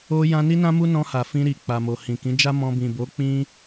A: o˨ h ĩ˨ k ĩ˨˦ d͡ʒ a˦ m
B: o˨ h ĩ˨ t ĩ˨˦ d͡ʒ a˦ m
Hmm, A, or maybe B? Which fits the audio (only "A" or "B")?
A